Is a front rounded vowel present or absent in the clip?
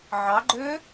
present